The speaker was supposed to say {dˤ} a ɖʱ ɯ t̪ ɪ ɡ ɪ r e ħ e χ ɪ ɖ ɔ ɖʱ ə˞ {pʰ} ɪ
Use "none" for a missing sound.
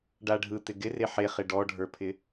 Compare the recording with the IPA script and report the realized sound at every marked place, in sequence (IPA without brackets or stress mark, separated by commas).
ɖ, pʰ